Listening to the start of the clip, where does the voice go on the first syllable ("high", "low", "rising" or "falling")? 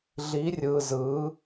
rising